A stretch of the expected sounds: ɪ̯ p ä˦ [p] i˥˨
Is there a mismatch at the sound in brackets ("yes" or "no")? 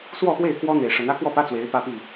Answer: no